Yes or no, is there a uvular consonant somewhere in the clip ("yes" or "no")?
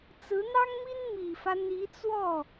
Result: no